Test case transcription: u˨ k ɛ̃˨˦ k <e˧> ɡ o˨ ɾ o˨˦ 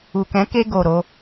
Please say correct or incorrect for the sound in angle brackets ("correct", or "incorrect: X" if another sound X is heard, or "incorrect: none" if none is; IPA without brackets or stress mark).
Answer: correct